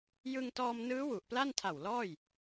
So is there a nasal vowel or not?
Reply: no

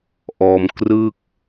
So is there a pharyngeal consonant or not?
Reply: no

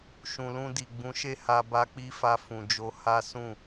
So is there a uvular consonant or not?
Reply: no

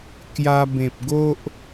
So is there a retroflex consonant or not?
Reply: no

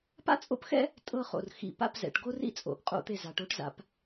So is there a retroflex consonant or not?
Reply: yes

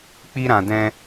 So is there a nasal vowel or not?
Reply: yes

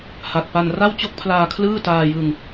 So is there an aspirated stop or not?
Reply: yes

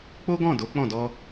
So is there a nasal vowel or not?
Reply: yes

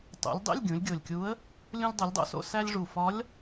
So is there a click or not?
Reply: no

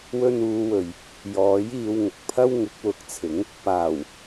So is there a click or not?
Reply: no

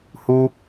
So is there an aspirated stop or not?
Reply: no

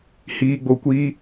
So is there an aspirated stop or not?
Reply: no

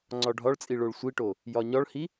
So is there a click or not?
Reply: yes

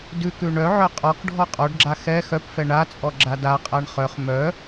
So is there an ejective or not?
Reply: yes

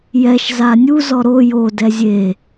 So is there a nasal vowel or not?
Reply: no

